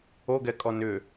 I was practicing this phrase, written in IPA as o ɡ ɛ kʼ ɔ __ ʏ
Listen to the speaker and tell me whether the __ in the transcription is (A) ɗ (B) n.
B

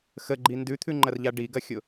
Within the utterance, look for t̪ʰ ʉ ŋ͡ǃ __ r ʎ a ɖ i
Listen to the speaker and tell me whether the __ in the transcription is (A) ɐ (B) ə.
A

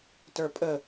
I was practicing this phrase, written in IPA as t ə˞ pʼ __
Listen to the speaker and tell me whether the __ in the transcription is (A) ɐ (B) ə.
B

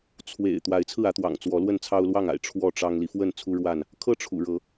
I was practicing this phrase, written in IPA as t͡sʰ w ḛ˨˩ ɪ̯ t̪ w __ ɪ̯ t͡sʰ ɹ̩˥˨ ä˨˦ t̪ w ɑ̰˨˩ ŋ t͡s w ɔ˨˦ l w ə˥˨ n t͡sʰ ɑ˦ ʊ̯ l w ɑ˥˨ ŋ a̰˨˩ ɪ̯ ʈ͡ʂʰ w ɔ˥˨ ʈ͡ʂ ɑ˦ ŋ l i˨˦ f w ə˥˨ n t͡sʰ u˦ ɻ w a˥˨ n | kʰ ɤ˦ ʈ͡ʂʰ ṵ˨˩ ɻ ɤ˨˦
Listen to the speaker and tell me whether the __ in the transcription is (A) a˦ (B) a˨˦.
B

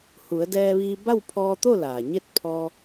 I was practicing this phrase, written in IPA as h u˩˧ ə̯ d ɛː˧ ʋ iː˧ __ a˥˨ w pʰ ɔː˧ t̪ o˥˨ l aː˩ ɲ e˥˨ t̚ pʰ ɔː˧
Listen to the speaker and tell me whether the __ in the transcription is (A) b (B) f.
A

